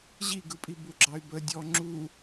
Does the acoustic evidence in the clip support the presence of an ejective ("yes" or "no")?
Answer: yes